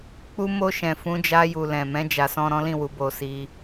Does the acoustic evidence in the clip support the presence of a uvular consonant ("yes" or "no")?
no